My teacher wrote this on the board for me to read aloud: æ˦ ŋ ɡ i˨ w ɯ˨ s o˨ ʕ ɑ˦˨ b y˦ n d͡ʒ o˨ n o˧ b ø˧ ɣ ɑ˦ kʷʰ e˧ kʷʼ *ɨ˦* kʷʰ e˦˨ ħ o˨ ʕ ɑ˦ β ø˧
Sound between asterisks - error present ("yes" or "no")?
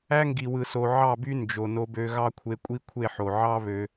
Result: yes